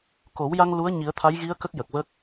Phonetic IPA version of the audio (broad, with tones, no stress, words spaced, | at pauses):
ko˨˩˦wja˧ŋ lu˧˥ə̯ ɲi˨˩˦ə̯t̪ʰa˧˥jɣi˧˥ə̯ kə˦˥k̚jə˨˩k̚və˦˥k̚